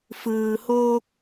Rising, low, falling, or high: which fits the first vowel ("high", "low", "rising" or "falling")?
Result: low